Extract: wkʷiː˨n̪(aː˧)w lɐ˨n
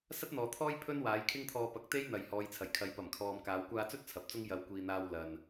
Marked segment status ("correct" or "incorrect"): correct